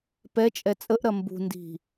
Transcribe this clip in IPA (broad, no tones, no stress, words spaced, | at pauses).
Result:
pɛ t͡ʃʼɛt͡sʼəʔɾɐ mbṳndi̤